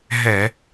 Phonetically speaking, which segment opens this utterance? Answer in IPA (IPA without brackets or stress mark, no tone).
ɦ